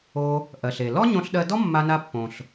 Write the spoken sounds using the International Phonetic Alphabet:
o˧ | ʔɜ˩ɬe˩ lɔ˥ɲõ˧ɬɗɜ˧dɔ˥ mːa˧na˧ pːõ˩ɬ

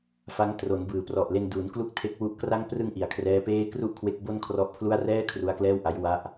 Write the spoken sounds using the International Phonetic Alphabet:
fa˦˥ŋ tro˩˦n bɯː˩˦prɔ˨˩ʔle˧n duː˩˦nklu˦˥k̚ tʰe˦˥k̚wu˦˥ʔkra˥˩ŋ prɯ˧ŋ ʔi˩˦a̯kʰrɛː˦˥peː˥˩ kru˥˩ʔkʰwe˦˥k̚ bo˥˩nkʰrɔ˦˥ʔpʰlu˥˩a̯ rɛː˥˩ kʰru˦˥a̯klɛː˥˩wʔa˦˥j wa˦˥ʔ

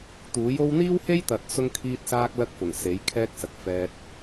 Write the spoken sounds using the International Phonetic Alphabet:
t̪uː˨˥jo˥w n̪iː˥whe˥jt̪ɐ˨t̚ sʊ˥ŋkʰiː˥t̚saː˥k̚ lɐ˥k̚fʊ˨˩ŋ se˨˥jkʰɛː˥k̚sɐ˨t̚ fɛː˧t̚

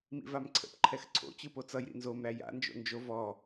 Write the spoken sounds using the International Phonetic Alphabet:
mḭvamǀʰə̰p ǃʰɛxǀʰo̰ t͡ɕɯpot͡sʌj ɾḭnzom ɾæja̰ nd͡ʒo̰nd͡ʒo vɔ

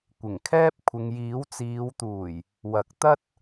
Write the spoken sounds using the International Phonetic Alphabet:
kʷɪ˨˩ŋkʰɛː˥p̚ kʷʰɪ˨ŋjiː˨˥wt͡siː˨˧wt̪uː˨˩j | wɐ˨˥k̚t̪ɐ˥t̚

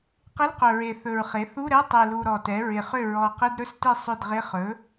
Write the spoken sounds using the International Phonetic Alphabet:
qɪ˧˥˧lqɵ˨˩ɹe˨˩ θɵ˨˩ɹχe˩˥θu˧˥˧ɾɛ˧˥˧ tˤe˨˩lu˨˩ ɾɔ˨˩tɛ˩˥ ɹɪ˨˩χʏ˥˩ ɹɔ˨˩qɪ˧˥˧dɾɵ˥˩stɪ˥˩ sˤʏ˥˩dʁɪ˧˥˧ χɵ˩˥

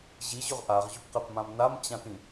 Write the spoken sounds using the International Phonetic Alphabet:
ʑiʑʊʁ ʔaʁʑʊpqɛpmãm namt͡ɕãtĩ

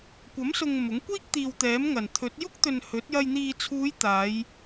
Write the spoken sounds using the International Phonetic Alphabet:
kʷɐ˨˥msʊ˨ŋ mʊ˨˥ŋkʷiː˥k̚ t̪iː˨wt̪ɛː˨˥m ŋɐ˨˩nt̪ʰɵ˨˥t̚ jʊ˥k̚t̪ɵ˨n hɵ˨˥t̚jɐ˧j n̪iː˨t͡sʰuː˨˧j t̪aː˨˧j

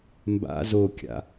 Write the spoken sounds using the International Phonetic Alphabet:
mba̰ zokʲa̰

